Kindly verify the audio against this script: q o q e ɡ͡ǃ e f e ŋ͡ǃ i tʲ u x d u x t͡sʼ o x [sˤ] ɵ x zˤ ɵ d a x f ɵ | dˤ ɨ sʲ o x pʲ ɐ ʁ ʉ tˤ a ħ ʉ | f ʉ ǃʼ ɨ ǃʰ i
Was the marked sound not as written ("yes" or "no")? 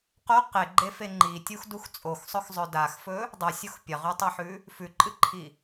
no